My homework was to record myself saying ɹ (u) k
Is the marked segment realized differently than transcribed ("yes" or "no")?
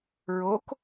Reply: yes